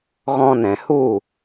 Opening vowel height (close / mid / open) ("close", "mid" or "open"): mid